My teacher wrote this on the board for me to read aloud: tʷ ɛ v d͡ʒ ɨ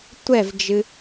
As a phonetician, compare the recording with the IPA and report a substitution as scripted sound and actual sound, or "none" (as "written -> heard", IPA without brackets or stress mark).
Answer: none